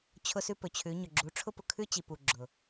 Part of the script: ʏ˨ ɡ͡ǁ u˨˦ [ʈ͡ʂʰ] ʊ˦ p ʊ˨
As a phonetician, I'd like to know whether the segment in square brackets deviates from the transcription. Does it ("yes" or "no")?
no